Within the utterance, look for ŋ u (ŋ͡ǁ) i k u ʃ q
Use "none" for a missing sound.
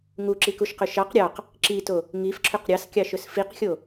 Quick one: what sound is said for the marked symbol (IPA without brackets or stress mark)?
ǁ